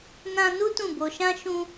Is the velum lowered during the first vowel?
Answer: yes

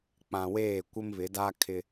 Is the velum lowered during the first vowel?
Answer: yes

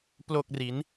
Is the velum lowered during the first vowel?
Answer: no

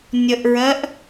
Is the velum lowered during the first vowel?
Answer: no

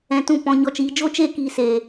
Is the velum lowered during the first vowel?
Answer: yes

